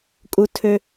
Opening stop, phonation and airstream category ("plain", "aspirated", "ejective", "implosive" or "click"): ejective